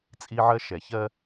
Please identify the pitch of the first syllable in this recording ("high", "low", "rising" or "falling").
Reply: high